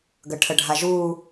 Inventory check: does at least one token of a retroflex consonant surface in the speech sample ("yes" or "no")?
yes